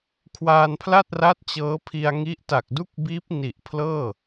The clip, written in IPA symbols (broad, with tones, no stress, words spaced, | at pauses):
kʰwaː˧npʰla˥˩t̚ra˦˥t̚ t͡ɕɤː˦˥pʰi˧a̯ŋi˦˥ʔ ta˨˩k̚du˥˩k̚biː˦˥p̚ ni˨˩ʔpʰlɤː˥˩